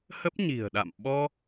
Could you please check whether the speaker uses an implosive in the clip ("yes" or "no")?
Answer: yes